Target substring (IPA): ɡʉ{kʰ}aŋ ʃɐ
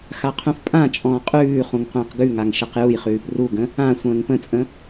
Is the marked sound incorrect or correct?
incorrect